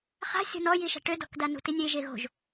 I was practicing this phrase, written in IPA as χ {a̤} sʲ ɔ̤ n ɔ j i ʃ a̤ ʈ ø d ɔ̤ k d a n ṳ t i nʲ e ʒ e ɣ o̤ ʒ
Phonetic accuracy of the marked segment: correct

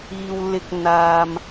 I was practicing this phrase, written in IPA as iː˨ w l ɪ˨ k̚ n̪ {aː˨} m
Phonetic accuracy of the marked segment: correct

